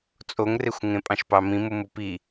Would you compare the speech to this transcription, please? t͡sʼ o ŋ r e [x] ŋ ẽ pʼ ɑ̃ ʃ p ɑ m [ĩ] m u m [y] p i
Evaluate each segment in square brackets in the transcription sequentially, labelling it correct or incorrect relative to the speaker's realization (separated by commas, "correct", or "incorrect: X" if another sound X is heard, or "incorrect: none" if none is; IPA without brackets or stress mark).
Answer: incorrect: xʷ, correct, incorrect: u